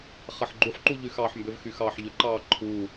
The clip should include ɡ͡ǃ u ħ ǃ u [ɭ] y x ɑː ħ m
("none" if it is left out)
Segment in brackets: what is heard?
ʎ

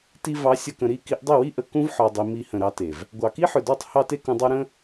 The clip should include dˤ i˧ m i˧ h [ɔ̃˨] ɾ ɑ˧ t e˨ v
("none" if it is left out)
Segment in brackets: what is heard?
ə̃˨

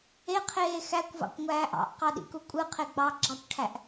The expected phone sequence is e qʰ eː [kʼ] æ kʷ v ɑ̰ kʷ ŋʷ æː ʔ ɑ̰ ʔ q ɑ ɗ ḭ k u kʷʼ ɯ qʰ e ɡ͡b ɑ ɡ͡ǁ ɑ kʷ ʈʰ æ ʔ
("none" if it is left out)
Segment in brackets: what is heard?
x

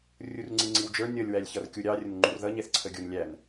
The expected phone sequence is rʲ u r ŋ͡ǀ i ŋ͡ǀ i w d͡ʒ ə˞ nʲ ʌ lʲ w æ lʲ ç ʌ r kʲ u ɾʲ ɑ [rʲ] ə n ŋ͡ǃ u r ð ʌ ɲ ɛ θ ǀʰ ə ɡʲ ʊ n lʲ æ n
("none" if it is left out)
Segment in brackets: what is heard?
rʲ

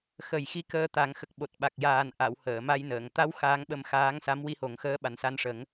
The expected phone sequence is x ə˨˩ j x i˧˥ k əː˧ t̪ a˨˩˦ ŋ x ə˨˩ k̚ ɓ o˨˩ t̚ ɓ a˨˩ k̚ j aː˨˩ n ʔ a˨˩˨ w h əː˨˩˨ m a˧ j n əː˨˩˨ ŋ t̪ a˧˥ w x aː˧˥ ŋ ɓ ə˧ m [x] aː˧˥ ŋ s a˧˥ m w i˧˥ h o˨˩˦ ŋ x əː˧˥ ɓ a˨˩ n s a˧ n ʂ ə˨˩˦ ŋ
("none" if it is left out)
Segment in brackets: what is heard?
x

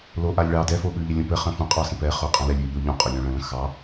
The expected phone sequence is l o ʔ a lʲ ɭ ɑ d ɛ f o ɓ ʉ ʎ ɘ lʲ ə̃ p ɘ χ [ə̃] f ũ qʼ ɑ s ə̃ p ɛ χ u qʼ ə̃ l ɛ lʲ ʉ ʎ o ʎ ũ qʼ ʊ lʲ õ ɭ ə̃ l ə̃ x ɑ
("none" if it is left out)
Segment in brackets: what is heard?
ə̃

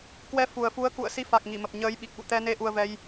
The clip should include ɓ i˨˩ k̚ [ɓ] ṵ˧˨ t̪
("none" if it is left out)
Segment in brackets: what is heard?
ɓ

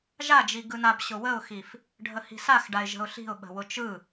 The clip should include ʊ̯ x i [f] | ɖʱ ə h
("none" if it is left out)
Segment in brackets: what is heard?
f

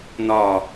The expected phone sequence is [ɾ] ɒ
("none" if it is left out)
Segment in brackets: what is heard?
n̪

